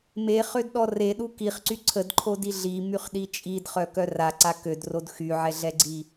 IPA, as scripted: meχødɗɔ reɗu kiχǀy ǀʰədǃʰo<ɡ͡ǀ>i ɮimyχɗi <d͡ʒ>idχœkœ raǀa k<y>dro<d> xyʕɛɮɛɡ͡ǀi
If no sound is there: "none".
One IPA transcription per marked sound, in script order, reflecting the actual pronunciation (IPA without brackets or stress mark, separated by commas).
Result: d, t͡ʃʼ, ø, d